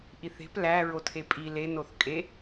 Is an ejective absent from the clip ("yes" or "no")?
no